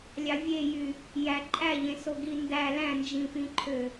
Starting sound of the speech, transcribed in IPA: lʲ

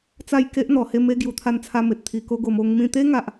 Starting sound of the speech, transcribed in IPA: t͡s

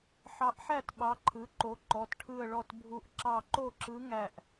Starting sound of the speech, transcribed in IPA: ħ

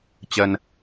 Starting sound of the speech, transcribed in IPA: t͡ɕ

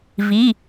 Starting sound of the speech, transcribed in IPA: v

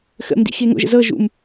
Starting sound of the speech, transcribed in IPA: x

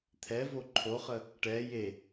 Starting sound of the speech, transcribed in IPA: t̪ʰ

